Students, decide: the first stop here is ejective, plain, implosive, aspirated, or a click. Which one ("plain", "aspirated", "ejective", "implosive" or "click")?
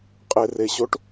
ejective